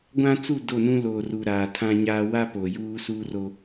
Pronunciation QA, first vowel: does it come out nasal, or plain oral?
nasal